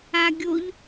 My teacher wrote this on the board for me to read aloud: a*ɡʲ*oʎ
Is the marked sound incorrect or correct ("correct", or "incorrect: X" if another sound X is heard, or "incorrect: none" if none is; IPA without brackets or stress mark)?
correct